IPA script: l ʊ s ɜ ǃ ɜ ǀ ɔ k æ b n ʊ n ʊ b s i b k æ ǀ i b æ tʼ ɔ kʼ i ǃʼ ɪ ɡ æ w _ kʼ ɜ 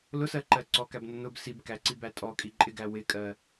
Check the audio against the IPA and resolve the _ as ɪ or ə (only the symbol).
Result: ɪ